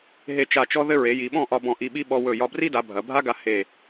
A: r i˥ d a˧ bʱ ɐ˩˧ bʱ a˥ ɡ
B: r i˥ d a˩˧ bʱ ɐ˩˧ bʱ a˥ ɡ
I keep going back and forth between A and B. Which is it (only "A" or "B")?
B